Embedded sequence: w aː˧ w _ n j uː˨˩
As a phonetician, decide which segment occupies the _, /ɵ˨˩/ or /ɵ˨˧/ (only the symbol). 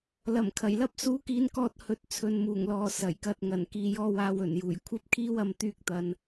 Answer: ɵ˨˩